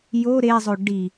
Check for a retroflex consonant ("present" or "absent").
present